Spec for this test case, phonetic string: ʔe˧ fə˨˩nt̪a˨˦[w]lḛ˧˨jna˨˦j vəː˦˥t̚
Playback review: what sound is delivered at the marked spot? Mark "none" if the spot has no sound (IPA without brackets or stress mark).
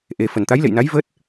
j